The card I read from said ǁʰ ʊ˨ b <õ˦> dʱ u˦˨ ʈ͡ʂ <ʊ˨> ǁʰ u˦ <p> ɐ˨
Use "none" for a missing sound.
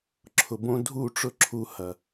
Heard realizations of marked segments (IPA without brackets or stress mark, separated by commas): õ˦, ʊ˦, h